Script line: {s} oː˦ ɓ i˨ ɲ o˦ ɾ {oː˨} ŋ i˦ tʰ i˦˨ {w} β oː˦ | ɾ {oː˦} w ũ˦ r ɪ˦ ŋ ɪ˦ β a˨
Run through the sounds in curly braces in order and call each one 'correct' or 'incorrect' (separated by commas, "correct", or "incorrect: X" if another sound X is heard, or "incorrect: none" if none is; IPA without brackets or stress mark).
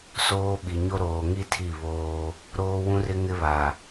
correct, correct, incorrect: none, correct